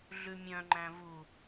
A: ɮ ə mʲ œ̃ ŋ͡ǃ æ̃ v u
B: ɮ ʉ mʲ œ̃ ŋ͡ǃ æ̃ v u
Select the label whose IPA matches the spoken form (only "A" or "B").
B